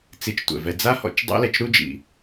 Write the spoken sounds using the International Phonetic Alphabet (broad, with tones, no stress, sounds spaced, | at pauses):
t͡s i˧ t͡ʃ tʷ ɛ̰˨ v ɛ˧ d͡z a˦ h ɔ̰˧ t͡ʃ dˤ ḭ˦ l ɛ˧ t͡ʃ ɾ u˦ d͡ʒ ḭ˨